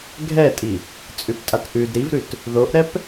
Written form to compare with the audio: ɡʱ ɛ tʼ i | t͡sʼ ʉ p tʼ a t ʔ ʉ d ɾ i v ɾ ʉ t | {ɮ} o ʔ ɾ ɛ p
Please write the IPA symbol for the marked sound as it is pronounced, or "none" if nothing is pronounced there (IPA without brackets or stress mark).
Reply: ð